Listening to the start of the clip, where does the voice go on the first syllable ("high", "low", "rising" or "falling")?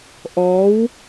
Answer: rising